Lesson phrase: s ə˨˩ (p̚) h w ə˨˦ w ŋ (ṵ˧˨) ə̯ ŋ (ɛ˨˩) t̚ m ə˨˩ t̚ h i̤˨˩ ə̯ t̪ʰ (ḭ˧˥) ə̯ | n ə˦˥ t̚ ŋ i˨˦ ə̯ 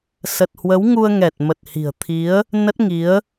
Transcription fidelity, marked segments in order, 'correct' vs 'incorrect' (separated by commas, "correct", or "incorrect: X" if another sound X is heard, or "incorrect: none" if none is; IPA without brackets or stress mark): incorrect: t̚, incorrect: u˧, correct, incorrect: i˨˦